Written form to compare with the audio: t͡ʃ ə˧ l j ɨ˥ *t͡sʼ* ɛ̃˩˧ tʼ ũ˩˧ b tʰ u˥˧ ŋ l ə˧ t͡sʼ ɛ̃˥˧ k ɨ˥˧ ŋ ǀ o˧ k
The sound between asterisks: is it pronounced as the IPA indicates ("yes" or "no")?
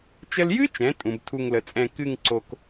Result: no